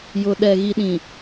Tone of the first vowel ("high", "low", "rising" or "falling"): low